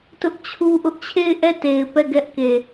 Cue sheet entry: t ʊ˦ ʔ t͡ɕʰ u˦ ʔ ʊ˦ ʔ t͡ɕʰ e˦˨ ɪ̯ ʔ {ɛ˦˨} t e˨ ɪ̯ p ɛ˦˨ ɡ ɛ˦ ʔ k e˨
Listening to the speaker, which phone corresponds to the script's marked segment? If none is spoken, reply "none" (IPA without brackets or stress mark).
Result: ɛ˦˨